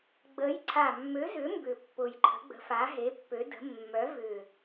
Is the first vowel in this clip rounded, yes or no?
no